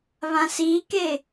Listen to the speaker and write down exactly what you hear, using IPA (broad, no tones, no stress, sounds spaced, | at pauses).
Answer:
β ã s i k e